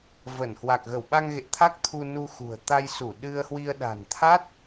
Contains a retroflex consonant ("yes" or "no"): no